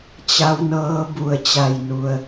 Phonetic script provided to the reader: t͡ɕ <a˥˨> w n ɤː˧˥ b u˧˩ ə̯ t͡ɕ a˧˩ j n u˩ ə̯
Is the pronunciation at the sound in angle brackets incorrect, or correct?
incorrect